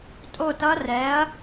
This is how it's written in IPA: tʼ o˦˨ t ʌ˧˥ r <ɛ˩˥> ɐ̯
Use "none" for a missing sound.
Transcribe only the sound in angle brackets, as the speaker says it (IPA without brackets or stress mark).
ɛ˩˥